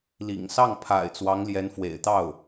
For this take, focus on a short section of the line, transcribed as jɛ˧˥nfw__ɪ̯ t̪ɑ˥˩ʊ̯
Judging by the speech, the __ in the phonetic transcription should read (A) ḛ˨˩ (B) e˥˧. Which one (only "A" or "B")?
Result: A